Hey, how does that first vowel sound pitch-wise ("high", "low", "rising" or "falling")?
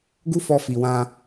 high